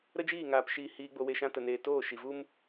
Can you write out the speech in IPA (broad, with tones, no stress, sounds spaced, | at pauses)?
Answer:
ɾ ə˦ d͡ʒ iː˦˨ ŋ aː˧ p ʃ iː˧ h iː˧ ɡ͡b o˧ w e˧ ʃ ã˧ t ə˨ n eː˨ t oː˦˨ ʃ i˨ v u˦ m